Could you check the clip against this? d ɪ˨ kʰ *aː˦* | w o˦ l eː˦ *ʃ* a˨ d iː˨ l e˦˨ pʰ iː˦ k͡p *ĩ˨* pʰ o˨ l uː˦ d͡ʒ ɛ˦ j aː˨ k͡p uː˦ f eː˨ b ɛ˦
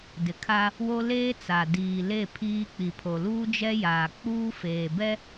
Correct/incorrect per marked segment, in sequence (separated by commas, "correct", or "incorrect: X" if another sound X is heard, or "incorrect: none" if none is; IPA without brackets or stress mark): incorrect: a˦, incorrect: t͡s, incorrect: i˨